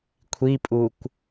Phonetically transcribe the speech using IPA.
kʷʰipʼukʷ

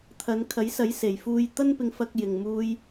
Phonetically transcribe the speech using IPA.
t̪ʰɐ˨˧n kʰɐ˨˥jsɐ˨˥jse˨jfuː˧j t̪ɐ˥npɪ˧ŋfɐ˧k̚jɪ˨ŋ muː˥j

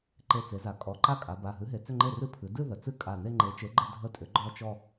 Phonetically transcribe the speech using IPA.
ǃe˧˩t͡se˩˧za˩˧ kʼɔ˩˧˩ǃa˥˩ kʼa˩˧ba˩˧˩ɦɨ˨˥ɦe˩˧ t͡sʏ˥˧ŋ͡ǃe˥˩rɨ˥˩ pʰɨ˩˧dɨ˥˧ ðə˩˧ t͡sɨ˥˧ kʼa˧˩ ne˥˧ŋ͡ǃe˨˥t͡ʃe˨˥ ɡ͡ǃə˥˧dʱə˥˩tʼʏ˨˥ ɡ͡ǃɔ˥˧t͡ʃɔ˥˧

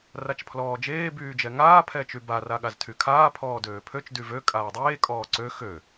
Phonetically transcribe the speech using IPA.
rat͡ʃpʰlɔːd͡ʒeː byːd͡ʒɛŋaː pʰɛt͡ʃyba raɠaztʰykʰaː pʰɔːdøːpʰøt͡ʃ dyvø kʼaːdˤeː kʼɔːǀø xø

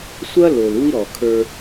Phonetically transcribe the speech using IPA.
sʷɐ˦ lo˨l u˦i̯ɾɔ˨ kʰə˞˦

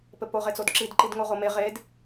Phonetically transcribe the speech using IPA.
pɘpo ʁet͡sodǁid ǃidŋoʁome ʁed

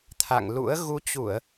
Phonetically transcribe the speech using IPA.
t̪ʰa̰˧˨ŋlṵ˧˥ə̯ ɣu˨˦t͡ɕu˧˩˨ə̯

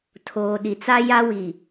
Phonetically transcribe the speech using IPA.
tʰoː˨ ɗi˨t͡sa˦ja˦ wi˨

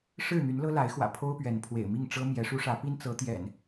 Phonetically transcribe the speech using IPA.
ʂɻ̩˥˨n̪y˨˦nlɤ˦ la˨˦ɪ̯xwä̰˨˩ pʰo˦ʊ̯pɥɛ˨˦npʰwḛ˨˩ɪ̯mi˥˨ŋ ʈ͡ʂɤ˦mjɛ˨˦ʂu˦ ʂä˨˦pi˦nt͡sɤ˨˦ t̪jɛ̰˨˩n

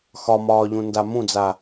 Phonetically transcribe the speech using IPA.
xɒmɒːʎũ ndamũd͡za

